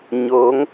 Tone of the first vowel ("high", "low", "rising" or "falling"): rising